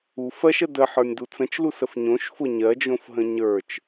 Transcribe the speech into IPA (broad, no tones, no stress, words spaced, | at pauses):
u fɜʃə dəħə˞nʲdu t͡sə̃t͡ʃlusəf ɲõʃfʊ ɲɜd͡ʒõfɦə̃ ɲə˞t͡ʃ